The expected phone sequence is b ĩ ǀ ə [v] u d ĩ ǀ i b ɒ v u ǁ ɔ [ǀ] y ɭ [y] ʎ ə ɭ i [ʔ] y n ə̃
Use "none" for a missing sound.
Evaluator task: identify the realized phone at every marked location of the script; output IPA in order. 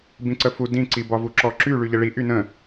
f, ǁ, y, ʔ

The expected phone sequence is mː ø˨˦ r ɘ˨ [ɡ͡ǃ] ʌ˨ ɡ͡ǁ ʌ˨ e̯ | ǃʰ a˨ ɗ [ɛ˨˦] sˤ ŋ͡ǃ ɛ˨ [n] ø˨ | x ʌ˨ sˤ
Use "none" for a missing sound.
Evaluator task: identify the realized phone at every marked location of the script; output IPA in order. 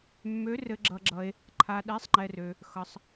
ɡ͡ǁ, ɛ˨˦, r

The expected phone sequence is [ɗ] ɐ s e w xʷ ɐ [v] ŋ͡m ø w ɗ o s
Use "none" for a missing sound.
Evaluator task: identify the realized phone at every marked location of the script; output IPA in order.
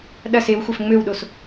ɗ, f

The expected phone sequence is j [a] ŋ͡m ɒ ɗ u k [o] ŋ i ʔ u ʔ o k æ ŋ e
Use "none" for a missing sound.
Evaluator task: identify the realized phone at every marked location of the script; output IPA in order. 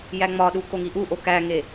æ, o

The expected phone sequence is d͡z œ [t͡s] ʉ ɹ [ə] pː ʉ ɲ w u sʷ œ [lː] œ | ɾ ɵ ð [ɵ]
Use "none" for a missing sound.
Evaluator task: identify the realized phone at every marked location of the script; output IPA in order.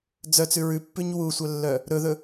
t͡s, ʉ, lː, ɵ

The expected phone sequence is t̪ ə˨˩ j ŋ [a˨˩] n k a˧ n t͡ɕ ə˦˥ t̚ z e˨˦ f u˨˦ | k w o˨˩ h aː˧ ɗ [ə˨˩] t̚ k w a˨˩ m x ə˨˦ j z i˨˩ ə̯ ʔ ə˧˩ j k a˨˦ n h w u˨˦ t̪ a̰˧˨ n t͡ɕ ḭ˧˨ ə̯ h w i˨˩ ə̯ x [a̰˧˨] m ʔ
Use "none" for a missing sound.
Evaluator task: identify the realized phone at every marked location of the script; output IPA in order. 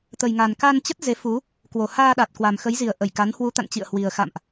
a˨˩, a˨˩, a̰˧˨

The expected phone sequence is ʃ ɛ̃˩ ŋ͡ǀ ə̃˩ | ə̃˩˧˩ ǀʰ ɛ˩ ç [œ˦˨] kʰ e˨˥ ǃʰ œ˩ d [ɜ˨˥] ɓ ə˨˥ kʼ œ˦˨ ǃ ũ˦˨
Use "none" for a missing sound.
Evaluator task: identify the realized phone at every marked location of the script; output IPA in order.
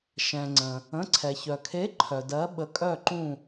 œ˩, ɜ˨˥

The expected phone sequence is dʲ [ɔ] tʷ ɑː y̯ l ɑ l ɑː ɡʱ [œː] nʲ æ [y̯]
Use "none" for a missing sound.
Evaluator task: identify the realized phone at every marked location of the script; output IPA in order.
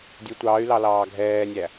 ʊ, ɛː, none

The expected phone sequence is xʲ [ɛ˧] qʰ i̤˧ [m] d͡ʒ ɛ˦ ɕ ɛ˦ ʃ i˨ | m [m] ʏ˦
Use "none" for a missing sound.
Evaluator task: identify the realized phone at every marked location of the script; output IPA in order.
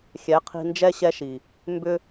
ɛ˨˦, n, b

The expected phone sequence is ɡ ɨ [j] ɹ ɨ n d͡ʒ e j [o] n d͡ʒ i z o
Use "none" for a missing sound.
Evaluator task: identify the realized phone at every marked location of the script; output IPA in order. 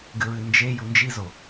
none, u

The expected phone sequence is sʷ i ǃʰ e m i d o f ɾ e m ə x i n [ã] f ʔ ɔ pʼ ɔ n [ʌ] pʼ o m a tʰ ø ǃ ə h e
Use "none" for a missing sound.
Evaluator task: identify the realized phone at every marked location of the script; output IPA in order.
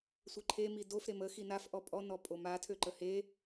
a, ɔ

